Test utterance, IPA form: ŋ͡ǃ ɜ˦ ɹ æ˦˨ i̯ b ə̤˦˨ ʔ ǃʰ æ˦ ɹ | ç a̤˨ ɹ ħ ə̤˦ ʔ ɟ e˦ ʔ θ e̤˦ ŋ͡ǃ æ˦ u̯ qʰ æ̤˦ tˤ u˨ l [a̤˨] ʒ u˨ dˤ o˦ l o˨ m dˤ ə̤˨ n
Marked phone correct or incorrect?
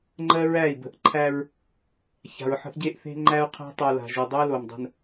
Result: correct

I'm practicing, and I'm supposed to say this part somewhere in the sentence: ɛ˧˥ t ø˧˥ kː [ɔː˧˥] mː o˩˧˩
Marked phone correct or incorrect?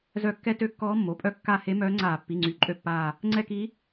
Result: correct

